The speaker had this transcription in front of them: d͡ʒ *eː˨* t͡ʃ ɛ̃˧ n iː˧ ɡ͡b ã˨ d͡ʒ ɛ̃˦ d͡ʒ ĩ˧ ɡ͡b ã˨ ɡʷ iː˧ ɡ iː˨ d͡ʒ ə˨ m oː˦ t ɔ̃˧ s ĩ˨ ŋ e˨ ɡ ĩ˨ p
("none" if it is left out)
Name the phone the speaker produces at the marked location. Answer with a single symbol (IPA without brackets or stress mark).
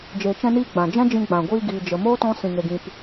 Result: eː˨